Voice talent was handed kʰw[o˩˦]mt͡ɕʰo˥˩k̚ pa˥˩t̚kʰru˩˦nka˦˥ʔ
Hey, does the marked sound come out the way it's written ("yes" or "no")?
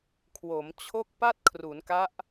yes